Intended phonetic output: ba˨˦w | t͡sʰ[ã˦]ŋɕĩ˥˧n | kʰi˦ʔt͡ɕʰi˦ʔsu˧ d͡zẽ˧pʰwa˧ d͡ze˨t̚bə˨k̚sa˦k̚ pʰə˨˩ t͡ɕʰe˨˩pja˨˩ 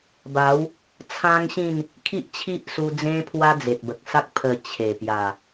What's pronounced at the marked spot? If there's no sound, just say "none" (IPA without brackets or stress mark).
ã˦